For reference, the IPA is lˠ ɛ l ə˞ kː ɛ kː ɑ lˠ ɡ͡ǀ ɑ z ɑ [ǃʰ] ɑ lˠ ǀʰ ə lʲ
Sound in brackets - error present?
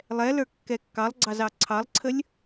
yes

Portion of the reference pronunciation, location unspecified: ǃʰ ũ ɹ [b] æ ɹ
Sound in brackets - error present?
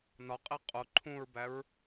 no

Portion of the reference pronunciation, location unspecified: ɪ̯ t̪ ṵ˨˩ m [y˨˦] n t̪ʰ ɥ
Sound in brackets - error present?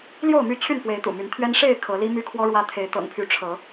no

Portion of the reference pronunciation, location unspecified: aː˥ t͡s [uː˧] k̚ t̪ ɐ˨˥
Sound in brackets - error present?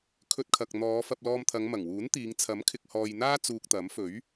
no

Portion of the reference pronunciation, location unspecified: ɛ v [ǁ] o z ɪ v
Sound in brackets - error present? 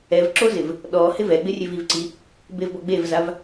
no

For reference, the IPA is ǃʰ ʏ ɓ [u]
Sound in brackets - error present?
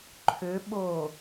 yes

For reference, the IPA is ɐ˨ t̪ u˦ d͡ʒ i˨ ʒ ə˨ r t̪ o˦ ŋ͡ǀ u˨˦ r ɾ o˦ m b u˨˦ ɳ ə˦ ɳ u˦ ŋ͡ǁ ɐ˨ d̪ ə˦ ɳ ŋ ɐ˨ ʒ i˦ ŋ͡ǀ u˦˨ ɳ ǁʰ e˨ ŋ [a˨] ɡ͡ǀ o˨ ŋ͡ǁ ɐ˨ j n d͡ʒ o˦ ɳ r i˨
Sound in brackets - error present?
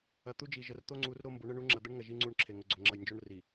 yes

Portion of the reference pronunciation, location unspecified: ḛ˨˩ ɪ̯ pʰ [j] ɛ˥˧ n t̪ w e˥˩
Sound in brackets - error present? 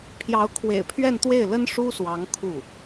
yes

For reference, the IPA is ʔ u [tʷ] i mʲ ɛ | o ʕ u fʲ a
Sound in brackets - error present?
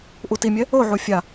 yes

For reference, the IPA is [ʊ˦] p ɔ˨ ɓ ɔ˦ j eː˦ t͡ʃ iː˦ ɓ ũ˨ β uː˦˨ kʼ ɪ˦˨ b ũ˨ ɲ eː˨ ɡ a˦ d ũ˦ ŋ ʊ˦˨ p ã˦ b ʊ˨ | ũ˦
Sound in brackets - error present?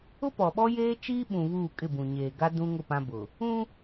no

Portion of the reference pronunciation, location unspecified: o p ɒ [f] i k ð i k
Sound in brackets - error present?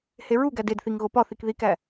yes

